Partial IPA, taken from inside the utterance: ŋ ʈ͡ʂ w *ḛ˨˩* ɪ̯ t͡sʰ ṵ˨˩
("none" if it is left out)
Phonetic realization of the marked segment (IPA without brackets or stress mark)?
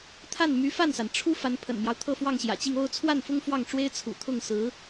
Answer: e˥